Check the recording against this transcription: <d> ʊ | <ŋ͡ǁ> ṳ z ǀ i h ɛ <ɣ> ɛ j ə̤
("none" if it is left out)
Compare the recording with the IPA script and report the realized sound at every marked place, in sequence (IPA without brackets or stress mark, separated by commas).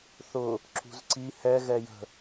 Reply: θ, ǁ, ɣ